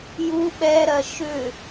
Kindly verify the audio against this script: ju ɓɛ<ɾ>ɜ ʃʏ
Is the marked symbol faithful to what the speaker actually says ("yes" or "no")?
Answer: yes